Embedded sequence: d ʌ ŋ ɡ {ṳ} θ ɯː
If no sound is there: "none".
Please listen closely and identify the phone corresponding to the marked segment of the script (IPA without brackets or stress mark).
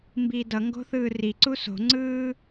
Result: o̤